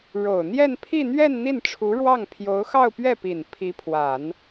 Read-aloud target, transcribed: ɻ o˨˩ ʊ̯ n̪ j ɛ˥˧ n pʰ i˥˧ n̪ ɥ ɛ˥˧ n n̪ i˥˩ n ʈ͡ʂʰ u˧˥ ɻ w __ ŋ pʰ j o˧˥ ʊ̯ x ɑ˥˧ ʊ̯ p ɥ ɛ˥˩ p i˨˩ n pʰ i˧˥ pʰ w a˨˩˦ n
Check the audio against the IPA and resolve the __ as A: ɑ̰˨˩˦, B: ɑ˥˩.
B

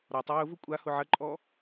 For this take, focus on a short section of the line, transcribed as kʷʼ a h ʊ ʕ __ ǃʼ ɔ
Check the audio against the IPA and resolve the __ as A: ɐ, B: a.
A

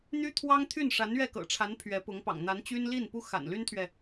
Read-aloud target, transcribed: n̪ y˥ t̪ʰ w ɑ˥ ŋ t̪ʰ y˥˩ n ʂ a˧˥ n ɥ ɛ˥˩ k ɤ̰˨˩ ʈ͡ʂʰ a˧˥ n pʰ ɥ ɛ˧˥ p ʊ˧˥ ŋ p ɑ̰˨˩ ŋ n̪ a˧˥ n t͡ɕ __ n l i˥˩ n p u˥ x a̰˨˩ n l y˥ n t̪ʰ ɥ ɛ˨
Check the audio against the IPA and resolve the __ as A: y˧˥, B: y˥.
B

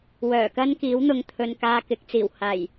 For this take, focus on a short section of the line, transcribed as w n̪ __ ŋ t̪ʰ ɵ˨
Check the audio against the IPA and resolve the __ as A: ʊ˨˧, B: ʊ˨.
B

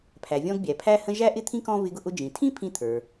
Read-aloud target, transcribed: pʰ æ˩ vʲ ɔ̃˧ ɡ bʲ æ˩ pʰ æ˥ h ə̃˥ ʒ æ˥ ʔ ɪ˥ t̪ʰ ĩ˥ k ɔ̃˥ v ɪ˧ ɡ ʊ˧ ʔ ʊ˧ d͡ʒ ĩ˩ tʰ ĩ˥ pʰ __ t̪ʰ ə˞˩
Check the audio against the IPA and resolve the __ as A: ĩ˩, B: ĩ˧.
B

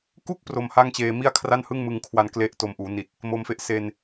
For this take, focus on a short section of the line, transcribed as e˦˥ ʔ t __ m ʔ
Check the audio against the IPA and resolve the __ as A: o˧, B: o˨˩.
A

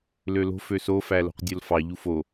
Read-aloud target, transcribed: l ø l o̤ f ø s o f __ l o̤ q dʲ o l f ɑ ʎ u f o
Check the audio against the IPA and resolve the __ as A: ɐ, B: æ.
B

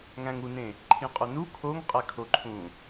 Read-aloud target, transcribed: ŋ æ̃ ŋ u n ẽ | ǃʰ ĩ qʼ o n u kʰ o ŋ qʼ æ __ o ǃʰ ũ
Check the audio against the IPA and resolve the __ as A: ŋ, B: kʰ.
B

